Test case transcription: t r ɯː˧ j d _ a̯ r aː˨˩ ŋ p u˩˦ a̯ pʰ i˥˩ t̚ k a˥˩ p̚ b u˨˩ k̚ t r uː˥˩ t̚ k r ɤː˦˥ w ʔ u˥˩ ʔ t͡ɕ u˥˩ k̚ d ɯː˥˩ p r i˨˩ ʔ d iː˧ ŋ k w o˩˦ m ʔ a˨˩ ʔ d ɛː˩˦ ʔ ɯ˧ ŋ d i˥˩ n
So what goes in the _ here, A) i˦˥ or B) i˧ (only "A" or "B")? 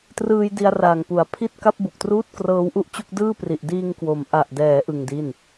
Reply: B